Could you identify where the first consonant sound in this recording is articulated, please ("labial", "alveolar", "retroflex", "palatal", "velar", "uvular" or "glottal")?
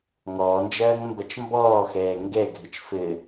velar